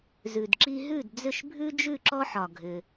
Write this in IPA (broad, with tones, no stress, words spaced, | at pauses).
zʉ˩dǁi˧ɦʉ˥˩d d͡zʏ˥˩ʃbʱʉ˥d͡ʒʉ˥˩ ǁɔ˥ħɒ˩ɡʱʏ˩